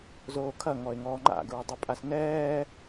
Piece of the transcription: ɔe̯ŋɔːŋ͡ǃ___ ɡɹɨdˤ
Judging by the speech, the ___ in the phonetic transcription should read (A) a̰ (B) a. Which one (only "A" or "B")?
A